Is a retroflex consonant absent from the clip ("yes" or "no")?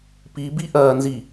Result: yes